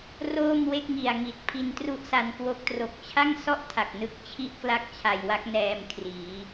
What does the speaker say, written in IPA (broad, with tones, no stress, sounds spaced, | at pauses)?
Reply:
r oː˥˩ m w e˥˩ k̚ ŋ i˨˩ a̯ ŋ i˨˩ t̚ pʰ i˧ n t r u˥˩ ʔ s a˧ n k w o˥˩ k̚ t r o˨˩ k̚ t͡ɕʰ a˥˩ ŋ s ɔ˥˩ ʔ tʰ a˨˩ k̚ n ɯ˦˥ k̚ t͡ɕʰ i˥˩ ʔ k l a˥˩ k̚ t͡ɕʰ a˨˩ j w a˦˥ k̚ n ɛː˧ m kʰ r iː˩˦